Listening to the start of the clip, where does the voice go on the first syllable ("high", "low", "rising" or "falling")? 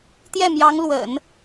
falling